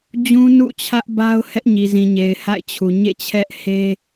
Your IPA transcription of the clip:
d͡ʑ ũ˦ n ṵ˦˨ t͡ɕʰ ä˦ ʔ b a˦ ʊ̯ h ɛ˦ ʔ ɲ i˨ z ĩ˨ ɲ e˨ ɪ̯ h a̰˦˨ ɪ̯ t͡ɕʰ u˨ ɲ ḛ˦˨ t͡ɕʰ ɛ˦ ʔ h e˦

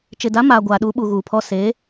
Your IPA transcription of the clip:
t͡ʃ ɪ˨ d a˨˦ m aː˨ ɡʷ aː˨ ɗ u˨˦ ɓ u˨ ɣ uː˨ pʰ ɔ˦ s e˨˦

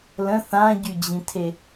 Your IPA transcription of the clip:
l ə̃ θ ã ɟ y d͡ʑ ĩ tʰ e

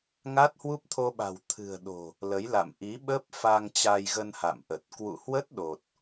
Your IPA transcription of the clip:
ŋ a˦˥ t̚ h w u˦˥ p̚ t̪ʰ o˧ ɓ a̤˨˩ w t̪ʰ ɨ̤˨˩ ə̯ ɗ o̤˨˩ | l ə˨˦ j l a̰˧˨ m ʔ i˨˦ ɓ ə˦˥ p̚ f a˧ ŋ t͡ɕ a˧ j ɣ ə˧ n h a̰˧˨ m ʔ ə˨˩ t̚ k w ṵ˧˨ h w ə˦˥ t̚ ɗ o˨˩ t̚

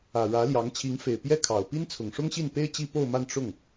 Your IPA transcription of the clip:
ä˨˩ ɻ ä˧˥ l j ɑ˧˥ ŋ t͡ɕʰ i˧˥ ŋ f e˨˩ ɪ̯ p j ɛ˥ kʰ ɑ˨˩ ʊ̯ p i˥ n t͡sʰ ʊ˨˩ ŋ ʂ ʊ˥ ŋ ɕ i˥˩ n p e˥ ɪ̯ t͡ɕ i˥ p o˥˧ ʊ̯ m a˥˧ n ʈ͡ʂ ʊ˥˩ ŋ

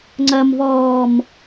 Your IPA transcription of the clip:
ŋ͡ǀ ɐ m v ɔː m

